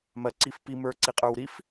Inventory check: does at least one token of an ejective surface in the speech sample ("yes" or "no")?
yes